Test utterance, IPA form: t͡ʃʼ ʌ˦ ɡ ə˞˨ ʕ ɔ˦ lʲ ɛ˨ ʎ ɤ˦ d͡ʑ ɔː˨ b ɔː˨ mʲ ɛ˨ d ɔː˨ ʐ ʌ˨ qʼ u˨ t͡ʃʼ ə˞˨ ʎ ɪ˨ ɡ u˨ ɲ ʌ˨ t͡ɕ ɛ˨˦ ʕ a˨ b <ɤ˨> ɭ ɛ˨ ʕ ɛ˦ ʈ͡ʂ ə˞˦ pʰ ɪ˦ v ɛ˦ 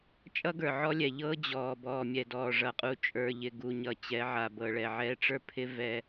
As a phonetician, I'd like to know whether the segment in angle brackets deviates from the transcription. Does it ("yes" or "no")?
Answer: no